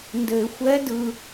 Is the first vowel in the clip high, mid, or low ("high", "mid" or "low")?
mid